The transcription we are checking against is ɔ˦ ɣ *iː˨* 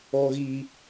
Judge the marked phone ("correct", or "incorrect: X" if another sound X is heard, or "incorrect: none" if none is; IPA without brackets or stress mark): incorrect: iː˦